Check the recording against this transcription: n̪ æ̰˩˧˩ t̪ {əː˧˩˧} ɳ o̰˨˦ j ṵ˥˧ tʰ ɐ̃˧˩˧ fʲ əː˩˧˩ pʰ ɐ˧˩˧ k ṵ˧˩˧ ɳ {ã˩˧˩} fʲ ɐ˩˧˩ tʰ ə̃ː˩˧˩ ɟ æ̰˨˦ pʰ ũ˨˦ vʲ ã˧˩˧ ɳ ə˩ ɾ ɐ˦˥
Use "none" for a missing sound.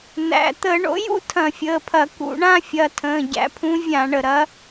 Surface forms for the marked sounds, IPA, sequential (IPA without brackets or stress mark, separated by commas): əː˧˩˧, ã˥˧